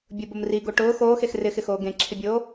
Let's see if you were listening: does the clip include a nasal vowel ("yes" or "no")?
yes